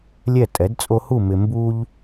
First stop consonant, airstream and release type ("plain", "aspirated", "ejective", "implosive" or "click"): ejective